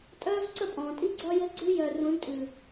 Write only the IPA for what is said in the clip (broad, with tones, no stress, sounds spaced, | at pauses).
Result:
tʼ œː˦ v ǀ ə˦˨ pʼ ɔ̃ː˨ tʼ i˦ ɡ͡ǀ ɒ˦ j ɘ˦ ɡ͡ǀ ʉ˦ j œ˨ r ũ˨˦ ɖ tʼ ʉ˨